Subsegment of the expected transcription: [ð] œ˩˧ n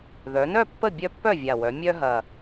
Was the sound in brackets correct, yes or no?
yes